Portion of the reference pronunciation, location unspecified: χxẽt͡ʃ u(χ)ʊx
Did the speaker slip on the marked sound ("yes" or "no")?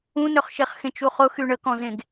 no